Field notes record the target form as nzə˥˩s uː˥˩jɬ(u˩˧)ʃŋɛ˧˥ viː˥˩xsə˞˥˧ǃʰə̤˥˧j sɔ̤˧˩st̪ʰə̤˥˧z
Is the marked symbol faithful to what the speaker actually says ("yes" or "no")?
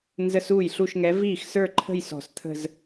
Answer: no